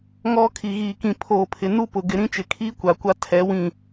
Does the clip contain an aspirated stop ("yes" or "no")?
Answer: yes